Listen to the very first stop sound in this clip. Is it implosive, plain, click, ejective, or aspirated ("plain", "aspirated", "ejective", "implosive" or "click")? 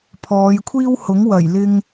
aspirated